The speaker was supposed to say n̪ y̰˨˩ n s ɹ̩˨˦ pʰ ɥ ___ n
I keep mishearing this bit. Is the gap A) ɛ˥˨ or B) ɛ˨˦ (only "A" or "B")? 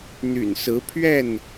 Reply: A